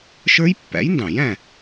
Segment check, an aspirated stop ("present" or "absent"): absent